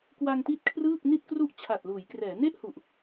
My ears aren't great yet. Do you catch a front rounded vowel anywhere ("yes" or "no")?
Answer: no